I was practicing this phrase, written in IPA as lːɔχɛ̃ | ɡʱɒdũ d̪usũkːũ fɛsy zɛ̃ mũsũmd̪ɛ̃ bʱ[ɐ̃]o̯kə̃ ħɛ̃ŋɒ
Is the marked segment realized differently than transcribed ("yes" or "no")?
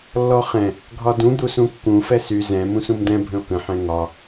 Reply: yes